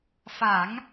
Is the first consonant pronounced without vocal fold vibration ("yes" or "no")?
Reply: yes